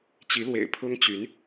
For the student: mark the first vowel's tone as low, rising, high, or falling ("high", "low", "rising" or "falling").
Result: rising